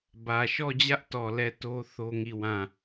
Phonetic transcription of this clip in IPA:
bä˨ʃɔ˦˨d͡ʑä˦ʔtɔ˨ lɛ˦˨to˦ θo˦ŋi˦˨wã˦˨

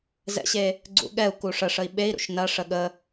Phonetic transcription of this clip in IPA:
zɛ̰ɕe | ɡ͡ǀṵɠɛu̯ku ʂəʂəi̯ ɓei̯ɾṵʃ nɐʂə ɠə

